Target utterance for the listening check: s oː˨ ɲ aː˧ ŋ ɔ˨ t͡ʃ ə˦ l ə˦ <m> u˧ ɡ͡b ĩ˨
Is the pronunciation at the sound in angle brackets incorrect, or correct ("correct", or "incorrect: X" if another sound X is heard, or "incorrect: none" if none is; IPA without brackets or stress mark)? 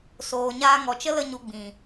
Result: incorrect: ɲ